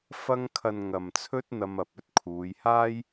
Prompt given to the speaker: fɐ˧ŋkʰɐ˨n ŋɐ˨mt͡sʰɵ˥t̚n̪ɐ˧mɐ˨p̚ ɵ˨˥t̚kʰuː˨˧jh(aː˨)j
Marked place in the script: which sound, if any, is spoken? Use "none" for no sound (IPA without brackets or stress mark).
aː˥